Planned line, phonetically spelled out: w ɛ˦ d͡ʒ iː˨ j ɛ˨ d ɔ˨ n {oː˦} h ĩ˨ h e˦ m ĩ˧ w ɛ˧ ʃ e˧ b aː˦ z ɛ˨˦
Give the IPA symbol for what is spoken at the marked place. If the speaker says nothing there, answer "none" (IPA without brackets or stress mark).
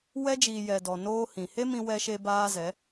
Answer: oː˦